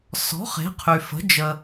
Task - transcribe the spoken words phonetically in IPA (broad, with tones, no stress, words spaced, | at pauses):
sɔ̤˩˥ χe̤˩˥qʰy˩fə̤˩˥ d͡ʒə˩